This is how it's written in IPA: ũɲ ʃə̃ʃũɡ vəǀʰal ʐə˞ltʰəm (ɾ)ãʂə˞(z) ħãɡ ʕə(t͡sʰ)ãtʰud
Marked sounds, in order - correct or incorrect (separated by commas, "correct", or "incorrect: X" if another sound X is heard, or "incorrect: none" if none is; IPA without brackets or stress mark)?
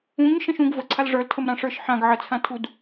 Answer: correct, incorrect: ʃ, correct